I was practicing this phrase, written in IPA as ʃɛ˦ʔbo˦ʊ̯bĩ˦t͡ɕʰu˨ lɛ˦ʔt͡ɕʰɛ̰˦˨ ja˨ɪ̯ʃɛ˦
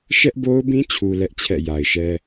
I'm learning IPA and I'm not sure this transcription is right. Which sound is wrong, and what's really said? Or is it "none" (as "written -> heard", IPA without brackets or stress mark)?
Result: none